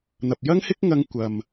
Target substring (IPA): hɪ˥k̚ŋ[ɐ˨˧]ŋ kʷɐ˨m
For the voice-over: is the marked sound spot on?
no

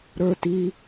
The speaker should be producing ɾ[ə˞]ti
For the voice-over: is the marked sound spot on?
yes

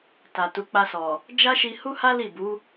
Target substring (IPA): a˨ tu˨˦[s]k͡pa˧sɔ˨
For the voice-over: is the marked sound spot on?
no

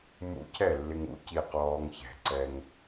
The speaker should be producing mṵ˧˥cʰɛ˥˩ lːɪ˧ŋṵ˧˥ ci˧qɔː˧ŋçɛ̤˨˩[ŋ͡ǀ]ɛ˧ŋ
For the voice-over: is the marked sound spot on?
no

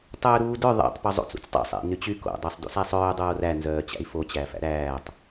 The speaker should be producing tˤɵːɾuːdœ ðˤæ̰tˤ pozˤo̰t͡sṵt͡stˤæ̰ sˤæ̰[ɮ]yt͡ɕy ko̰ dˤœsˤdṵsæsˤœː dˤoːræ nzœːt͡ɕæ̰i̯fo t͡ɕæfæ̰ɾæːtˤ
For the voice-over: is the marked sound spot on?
no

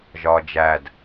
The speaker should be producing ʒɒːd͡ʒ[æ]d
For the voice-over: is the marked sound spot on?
yes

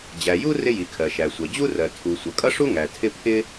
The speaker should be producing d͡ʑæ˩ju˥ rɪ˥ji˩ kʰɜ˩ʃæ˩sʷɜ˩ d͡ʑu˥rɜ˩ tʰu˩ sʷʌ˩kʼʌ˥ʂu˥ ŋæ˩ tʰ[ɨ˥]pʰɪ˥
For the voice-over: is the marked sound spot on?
no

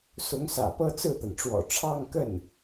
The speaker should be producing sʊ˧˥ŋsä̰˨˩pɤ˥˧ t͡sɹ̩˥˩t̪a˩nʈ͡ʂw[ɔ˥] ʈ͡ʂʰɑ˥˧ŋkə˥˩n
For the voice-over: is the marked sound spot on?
no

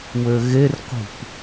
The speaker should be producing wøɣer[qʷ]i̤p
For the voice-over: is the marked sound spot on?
yes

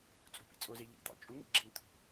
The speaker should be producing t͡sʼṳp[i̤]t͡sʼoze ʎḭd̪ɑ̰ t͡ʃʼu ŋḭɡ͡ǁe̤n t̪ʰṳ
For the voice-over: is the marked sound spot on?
no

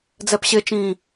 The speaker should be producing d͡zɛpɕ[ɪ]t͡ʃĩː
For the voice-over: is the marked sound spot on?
yes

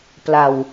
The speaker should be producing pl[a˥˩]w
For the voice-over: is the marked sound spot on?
no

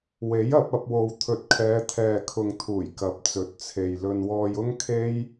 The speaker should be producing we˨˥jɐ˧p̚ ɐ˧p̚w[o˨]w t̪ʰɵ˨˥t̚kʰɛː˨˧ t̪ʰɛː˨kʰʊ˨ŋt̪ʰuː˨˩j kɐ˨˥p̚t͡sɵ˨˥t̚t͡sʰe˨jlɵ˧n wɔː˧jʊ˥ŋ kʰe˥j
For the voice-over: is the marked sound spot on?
yes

